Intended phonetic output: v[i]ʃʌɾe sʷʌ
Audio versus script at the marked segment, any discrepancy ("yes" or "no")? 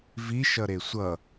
no